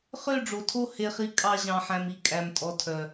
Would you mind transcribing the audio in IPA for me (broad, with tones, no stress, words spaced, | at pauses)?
χø˦˨ɖ͡ʐo˨tʰo˦˨ he˦χi˦ kʼɑ˦ʑɑ̃˧ħæ̃˧m i˨ kʼæ˧mtʼɔ˧ tʰœ˨